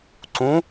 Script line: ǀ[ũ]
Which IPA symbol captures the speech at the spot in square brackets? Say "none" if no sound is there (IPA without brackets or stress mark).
ũ